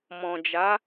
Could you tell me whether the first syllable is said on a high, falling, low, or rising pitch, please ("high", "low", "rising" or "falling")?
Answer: low